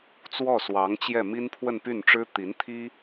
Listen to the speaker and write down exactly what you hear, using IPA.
t͡s w ɔ˥˩ s w ɑ˧˥ ŋ t͡ɕ j ɛ˥˩ m i˥ n pʰ w ə˥˧ n p y˥˩ n ʈ͡ʂ ɻ̩˥ t̪ i˧˥ n t̪ʰ i˥

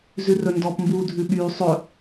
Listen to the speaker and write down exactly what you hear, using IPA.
z ʉ r ɵ n d ɔ p m b uː dʱ ʉ ɓ yː sˤ ɵ

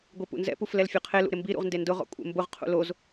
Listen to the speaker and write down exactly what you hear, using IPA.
ɡʷ i p ṵ n z ɛ̰ p u f l ɛ l fʲ ɔ qʰ e l ṵ ɾ ɪ m b i ɾ ṵ ʁ n d e n d ʊ ʁ ɔ̰ kʷʼ ḛ m b ʊ ʁ qʰ ṵ l o z

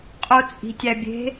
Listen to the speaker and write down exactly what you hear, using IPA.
qʼ o t͡sʼ i̤ tʲ æ bʲ e̤

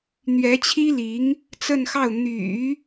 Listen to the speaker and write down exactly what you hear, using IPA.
n̪ ɥ ɛ˧˥ t͡ɕʰ i˥ l i˧˥ ŋ | t͡s ə˥˧ n x ɑ˥˩ ʊ̯ n̪ y̰˨˩˦

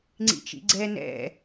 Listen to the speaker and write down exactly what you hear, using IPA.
ŋ͡ǀ ḭ t͡ʃ ḭ ɡ͡ǀ ɛ n ɛ̰

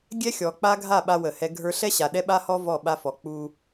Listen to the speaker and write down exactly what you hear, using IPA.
ɡʲ ɛ˦ xʲ ɔ˨ k͡p a˦ ɡʱ a˦˨ ɓ a˦ w ə˨ h ɛ˦ ɡʱ ə˞˦ ɬ ɛ˦ ɕ a˨ ɗ ɛ˦ ɓ a˦ h ɔ˦ v ɔ˦˨ ɓ a˦ f ɔ˨ k͡p u˦

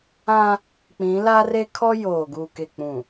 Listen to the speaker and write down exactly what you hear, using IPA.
ã˦ | k͡p ĩ˨˦ l a˦ r e˦ kʰ ɔ˦ j oː˨ ɡ u˨ k e˨ k͡p ũ˨

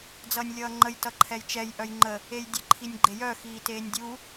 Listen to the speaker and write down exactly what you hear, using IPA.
d͡z ʌː nʲ lʲ ʌː ŋ͡ǃ ə j t ʌ ǃʰ ɛ j t͡ʃ ɛ j ʔ œ j ŋ͡ǃ ə | e j dʲ ə ǃʰ i nʲ ɡ͡ǃ e j œ x iː t eː nʲ dʲ u

